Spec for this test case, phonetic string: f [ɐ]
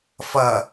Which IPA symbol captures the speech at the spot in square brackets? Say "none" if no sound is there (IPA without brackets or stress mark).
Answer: ɐ